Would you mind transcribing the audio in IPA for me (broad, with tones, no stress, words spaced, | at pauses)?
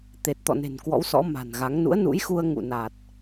t̪e˨˩t̚t̪ɔ̰˧˨ne̤˨˩n kwɔ̰˧˥wsɔ̰˧˥ma̤˨˩nɣa˨˦ŋ nṵ˧˥ə̯nṵ˧˥j xu˧ə̯ ŋṵ˧˨na˨˩t̚